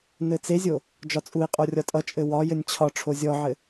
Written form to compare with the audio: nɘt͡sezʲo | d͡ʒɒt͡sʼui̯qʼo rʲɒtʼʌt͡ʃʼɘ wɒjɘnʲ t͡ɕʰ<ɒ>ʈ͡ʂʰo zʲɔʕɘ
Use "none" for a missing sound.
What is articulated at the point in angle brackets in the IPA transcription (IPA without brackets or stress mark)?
ɒ